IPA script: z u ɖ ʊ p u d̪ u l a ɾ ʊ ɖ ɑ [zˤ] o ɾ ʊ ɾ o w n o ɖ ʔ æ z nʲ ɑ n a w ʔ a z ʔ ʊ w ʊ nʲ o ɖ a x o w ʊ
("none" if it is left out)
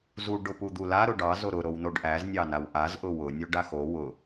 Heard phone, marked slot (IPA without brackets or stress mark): z